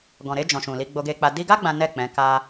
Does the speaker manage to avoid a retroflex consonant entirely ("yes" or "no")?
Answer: yes